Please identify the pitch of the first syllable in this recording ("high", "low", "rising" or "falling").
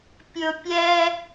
low